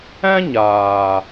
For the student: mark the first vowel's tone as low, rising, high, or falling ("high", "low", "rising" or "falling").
high